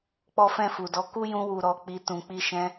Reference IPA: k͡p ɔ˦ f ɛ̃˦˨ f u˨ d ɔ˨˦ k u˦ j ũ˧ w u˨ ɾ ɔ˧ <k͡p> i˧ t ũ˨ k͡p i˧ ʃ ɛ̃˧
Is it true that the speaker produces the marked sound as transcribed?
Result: yes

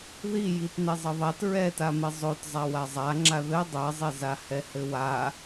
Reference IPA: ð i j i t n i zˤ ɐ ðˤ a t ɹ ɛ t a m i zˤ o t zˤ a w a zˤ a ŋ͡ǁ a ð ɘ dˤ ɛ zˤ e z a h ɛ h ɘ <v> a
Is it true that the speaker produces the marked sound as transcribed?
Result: no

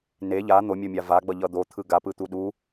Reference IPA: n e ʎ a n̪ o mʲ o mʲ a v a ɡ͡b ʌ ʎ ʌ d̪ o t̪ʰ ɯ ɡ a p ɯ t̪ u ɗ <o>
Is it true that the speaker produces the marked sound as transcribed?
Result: no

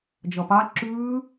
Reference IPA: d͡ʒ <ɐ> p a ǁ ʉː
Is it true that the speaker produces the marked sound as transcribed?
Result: yes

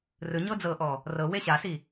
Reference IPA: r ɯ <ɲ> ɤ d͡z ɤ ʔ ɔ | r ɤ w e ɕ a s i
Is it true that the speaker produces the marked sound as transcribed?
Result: yes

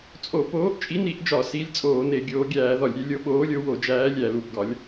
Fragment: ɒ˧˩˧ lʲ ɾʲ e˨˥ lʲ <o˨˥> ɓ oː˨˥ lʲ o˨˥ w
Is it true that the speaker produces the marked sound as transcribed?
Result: yes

